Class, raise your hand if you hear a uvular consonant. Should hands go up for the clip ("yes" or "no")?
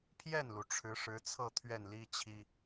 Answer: no